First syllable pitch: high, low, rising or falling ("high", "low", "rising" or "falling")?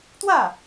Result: falling